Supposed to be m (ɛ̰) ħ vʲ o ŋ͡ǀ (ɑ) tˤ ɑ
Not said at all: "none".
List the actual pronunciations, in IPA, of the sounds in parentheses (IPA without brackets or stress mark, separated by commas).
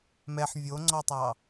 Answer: ɛ, ɔ